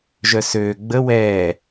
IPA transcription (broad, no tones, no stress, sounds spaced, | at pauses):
ʒ œ s øː ɡ͡b ə w ɛː